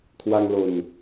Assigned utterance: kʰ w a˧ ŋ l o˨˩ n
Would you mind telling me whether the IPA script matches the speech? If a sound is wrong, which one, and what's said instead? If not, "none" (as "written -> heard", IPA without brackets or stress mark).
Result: none